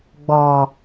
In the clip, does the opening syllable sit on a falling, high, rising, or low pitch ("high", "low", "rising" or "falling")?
low